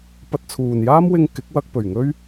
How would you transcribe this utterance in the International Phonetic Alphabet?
pɐ˧t̚t͡sʰuː˨njaː˥mwɪ˧ŋ kɪ˨˥k̚wɐ˧k̚ pɵ˨˩ɥŋɵ˥ɥ

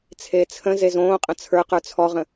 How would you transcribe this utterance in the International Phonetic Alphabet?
t͡sʰeːt͡sʰə̃ze zõːqʼə̃ t͡sʰə˞qə˞ t͡sʰɔʁə̃

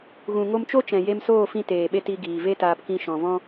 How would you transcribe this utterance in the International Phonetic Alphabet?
ɣũ˨ŋo˧mt͡ʃo˦ t͡ʃɛ̃˨je˧msoː˦˨fĩ˧ teː˨ɓe˧t i˧ɡiː˨ve˦ taː˧pkĩ˧ ʃɔ̃˨vɔ̃˦

